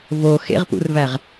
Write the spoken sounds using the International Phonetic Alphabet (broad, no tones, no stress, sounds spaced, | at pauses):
v o x ḛ ʁ p ṵ r v æ ʁ